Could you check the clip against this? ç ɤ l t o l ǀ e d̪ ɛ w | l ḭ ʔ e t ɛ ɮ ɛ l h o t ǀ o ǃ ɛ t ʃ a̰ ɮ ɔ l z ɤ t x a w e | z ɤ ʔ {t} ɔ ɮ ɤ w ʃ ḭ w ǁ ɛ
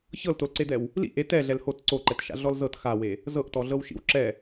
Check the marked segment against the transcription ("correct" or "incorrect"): correct